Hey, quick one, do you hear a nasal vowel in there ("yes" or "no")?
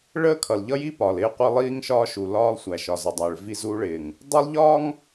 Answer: no